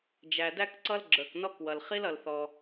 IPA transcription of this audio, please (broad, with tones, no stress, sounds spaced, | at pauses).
d͡ʒ æ˩ d æ˥ k ǀ ʌ˥ l ɡ͡ǁ ə˞˩ k n ɔ˥ k w ʌ˩ l χ i˥ l ʌ˩ l θ ɔ˩